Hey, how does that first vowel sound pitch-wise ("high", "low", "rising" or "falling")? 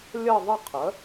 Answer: falling